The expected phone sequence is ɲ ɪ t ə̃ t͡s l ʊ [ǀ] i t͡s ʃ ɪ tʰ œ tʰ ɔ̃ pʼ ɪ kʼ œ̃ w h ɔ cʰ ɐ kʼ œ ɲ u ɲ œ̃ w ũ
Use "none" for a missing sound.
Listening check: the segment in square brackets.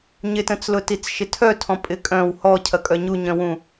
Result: t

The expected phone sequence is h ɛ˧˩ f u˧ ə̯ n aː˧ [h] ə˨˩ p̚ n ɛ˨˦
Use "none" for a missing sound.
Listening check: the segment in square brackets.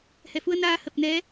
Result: h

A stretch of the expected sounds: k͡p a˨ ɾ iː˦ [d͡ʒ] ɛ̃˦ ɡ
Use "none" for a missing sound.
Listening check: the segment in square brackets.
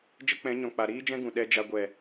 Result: d͡ʒ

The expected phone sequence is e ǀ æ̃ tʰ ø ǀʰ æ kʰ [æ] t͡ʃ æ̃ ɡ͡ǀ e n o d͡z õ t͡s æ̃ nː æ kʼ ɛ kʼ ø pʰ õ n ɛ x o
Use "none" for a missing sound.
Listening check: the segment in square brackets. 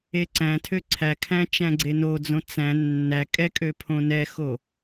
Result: æ̃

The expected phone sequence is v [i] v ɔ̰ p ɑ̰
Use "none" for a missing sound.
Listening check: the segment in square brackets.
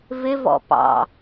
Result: ɪ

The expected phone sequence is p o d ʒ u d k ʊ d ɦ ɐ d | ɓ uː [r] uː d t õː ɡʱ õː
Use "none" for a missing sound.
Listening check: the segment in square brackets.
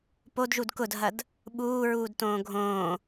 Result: ɹ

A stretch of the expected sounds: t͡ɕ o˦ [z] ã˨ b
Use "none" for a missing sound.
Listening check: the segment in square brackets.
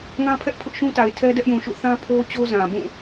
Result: z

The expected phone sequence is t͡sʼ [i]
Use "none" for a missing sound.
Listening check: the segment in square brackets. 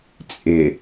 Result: ɪ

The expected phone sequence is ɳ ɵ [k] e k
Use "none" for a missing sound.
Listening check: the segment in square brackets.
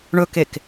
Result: k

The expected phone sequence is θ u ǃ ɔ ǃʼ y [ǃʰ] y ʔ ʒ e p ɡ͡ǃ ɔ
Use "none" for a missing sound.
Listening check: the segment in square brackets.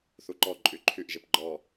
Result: ǃʰ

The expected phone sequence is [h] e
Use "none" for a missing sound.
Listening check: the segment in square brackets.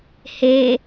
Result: h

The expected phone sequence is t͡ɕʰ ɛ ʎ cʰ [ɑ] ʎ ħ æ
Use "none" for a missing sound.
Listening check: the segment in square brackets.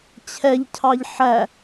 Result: ɑ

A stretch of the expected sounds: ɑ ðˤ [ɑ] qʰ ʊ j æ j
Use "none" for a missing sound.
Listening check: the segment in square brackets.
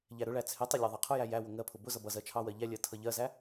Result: ɑ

